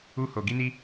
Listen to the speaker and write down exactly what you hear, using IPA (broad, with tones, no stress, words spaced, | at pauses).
u˦ ho˧ ɡi˦ni˦